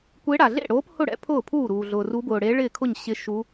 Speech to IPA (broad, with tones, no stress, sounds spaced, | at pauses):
kʷ e˧˥ ɽ a˩ ɮ ḛ˥˩ ɽ oː˧˥ p h ʊ˥˩ ɽ ɛ̰˧˥ pʰ ʊː˥˩ pʰ uː˥˩ ɾ uː˩ ɮ ʊː˩ r u˧˥ b ʊː˩ ɽ e˧˥ ɭ ɪː˥˩ kʰ ʊ˥˩ ɲ ɕ ɪ˧˥ ʃ u˧˥